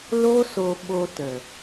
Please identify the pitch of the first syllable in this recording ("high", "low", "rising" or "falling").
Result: high